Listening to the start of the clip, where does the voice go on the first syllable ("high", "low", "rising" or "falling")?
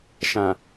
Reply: low